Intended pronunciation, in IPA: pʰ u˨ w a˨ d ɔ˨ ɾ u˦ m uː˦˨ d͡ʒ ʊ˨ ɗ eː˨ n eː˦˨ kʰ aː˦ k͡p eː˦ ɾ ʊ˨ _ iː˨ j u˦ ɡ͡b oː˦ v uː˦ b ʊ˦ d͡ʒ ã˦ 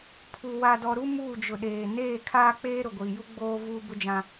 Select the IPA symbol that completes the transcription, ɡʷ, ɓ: ɡʷ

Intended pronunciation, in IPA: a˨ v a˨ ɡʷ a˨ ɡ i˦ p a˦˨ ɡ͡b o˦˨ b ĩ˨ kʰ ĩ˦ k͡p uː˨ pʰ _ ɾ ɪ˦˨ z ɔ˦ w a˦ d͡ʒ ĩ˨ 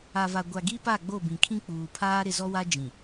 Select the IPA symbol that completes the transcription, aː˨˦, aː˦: aː˦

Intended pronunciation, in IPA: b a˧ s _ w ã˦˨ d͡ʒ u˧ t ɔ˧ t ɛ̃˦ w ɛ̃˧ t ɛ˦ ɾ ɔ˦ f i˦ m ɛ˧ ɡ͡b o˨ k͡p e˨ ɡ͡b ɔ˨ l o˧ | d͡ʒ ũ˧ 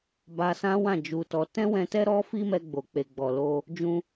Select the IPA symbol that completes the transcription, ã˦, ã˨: ã˦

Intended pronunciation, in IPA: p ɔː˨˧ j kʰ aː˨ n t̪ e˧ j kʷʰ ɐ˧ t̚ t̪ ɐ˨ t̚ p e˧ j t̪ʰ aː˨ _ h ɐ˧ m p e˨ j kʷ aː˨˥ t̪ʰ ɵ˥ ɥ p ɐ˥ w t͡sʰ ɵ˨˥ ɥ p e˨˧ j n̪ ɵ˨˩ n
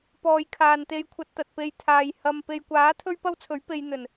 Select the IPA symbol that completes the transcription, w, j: j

